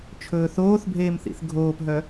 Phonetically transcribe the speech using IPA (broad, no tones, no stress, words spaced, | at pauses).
t͡ʃʰɵːθoːθbʱeːm θḭθɡʱoːpɦœ